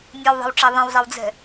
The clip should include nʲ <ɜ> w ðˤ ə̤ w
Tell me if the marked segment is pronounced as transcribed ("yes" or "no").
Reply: yes